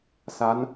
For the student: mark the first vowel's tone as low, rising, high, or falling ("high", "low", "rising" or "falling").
rising